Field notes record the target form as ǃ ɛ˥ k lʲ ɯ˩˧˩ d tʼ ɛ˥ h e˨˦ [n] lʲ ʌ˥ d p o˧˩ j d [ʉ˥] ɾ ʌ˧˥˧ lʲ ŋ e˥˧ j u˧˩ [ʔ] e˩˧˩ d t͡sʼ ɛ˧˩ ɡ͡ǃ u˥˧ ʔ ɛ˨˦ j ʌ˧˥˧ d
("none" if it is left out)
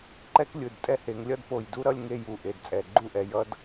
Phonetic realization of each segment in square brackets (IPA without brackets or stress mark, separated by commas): ŋ, u˥, ʔ